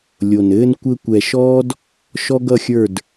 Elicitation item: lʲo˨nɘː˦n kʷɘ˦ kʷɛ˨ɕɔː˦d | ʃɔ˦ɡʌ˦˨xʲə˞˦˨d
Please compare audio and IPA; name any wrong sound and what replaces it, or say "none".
ɕ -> ʃ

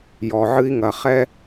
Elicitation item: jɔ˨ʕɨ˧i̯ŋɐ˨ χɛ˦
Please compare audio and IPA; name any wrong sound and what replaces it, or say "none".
none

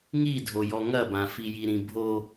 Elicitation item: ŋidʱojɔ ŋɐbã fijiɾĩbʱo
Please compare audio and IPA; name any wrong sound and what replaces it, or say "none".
none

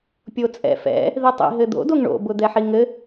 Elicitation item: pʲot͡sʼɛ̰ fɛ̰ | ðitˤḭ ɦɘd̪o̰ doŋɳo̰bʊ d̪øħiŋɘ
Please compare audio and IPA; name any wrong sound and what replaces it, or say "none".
ø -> ɛ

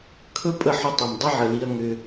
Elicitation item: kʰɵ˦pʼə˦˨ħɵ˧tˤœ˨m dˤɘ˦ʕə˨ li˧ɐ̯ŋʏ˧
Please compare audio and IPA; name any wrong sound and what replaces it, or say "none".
œ˨ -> ɵ˨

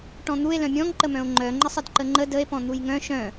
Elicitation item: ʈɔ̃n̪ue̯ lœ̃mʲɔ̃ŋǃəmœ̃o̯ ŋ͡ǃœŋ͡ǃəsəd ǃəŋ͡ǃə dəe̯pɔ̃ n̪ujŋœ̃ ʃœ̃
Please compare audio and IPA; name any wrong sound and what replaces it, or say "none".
s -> sˤ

